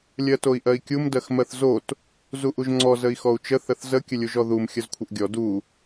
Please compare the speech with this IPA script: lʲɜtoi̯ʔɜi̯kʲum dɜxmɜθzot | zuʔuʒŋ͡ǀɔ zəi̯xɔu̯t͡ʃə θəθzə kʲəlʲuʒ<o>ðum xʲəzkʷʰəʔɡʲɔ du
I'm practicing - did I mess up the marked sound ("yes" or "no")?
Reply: yes